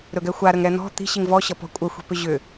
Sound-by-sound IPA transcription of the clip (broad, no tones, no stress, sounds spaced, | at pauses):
ɾ ɵ ɡ ɛ xʷ a ɾ ə ŋ ɾ ɛ n̪ ɔ̤ t̪ i̤ ɕ i ŋ v ɔ ɕ ʌ p ɔ̤ kʷʼ ə xʷ i̤ p ʏ ʑ ʏ